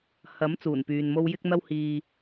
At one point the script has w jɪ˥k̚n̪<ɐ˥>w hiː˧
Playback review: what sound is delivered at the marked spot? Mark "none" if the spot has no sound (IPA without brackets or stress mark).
ɐ˥